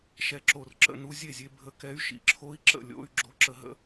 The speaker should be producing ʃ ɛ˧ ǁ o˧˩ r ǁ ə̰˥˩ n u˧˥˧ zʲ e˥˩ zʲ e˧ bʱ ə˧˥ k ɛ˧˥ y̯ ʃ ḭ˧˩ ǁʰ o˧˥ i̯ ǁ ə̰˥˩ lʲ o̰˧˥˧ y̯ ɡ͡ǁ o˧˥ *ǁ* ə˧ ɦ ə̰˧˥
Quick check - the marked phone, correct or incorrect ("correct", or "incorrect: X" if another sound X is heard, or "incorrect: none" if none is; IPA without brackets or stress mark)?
correct